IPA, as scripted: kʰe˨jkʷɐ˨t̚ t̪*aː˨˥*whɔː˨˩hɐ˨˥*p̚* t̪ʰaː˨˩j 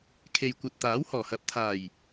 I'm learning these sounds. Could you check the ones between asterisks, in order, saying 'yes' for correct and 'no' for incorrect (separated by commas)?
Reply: yes, yes